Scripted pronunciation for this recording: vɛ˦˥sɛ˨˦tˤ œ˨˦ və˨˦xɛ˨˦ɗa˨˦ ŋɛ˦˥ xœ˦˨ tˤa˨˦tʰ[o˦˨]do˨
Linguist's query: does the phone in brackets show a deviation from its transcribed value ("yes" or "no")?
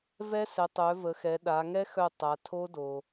yes